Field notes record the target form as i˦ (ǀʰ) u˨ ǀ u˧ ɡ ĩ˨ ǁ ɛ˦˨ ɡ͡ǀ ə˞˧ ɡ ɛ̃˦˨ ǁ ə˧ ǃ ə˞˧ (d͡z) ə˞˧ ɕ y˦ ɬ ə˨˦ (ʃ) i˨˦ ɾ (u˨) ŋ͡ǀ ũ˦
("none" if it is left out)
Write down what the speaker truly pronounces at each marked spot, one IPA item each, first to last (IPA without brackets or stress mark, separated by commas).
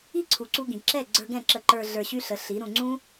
ǀʰ, ɮ, ɬ, ũ˨